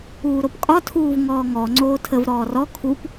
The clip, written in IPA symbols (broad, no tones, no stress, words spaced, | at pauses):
uːɾopkʼɒ tʰuːvŋɔːŋɔ ŋ͡ǀoːtʰəv ɾɔːrɔ kʰup